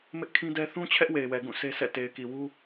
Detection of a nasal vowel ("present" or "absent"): present